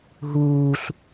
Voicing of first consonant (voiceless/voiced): voiced